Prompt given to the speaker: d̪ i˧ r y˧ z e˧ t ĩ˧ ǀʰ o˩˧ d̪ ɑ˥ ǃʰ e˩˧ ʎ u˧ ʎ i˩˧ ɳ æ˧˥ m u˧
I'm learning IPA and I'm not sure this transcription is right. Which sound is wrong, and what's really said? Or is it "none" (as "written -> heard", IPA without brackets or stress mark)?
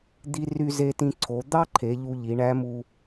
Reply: none